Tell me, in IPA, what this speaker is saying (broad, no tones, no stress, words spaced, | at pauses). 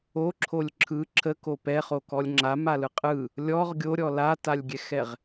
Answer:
oǁʰolʲ ǁʰɯ ǁʰəko pɛχokɔlʲ ŋ͡ǁamalɯ qʼɯ | lʲɔʁ ɡʲoɾʲɔ latalʲɡʲɛxɛʁ